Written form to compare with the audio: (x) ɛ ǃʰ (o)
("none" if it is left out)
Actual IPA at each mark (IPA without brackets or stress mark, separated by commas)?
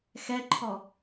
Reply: x, ɔ